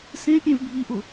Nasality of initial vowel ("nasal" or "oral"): nasal